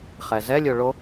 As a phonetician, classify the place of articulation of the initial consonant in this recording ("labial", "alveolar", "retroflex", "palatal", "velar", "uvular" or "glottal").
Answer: uvular